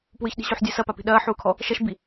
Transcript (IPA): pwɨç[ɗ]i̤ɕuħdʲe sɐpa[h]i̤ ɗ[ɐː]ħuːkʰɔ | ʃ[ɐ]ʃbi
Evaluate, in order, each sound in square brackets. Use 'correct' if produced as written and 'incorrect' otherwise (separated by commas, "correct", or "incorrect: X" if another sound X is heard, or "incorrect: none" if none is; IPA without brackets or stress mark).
correct, incorrect: p, correct, correct